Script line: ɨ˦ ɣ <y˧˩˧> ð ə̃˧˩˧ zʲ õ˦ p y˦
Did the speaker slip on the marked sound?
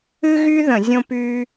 yes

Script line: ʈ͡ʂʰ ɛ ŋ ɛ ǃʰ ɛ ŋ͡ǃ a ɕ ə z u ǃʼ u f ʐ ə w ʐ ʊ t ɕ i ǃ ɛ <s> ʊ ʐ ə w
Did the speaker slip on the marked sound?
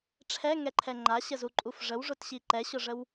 yes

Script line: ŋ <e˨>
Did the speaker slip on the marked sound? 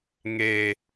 no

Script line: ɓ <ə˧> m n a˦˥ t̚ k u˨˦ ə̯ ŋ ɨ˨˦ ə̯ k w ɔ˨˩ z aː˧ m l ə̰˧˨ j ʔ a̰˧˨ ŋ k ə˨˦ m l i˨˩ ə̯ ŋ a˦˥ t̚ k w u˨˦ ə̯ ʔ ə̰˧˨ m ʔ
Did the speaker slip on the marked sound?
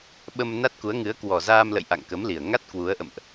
no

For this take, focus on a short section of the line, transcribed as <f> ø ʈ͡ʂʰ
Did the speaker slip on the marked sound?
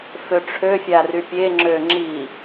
no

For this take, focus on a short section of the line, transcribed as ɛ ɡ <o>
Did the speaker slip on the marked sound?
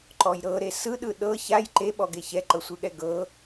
yes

